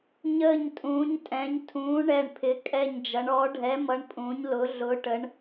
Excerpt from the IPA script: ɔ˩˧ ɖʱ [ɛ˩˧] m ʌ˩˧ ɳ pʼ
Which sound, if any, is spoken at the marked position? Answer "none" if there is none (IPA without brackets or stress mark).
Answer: ɛ˩˧